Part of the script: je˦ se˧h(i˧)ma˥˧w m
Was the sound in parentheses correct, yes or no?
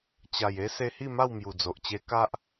no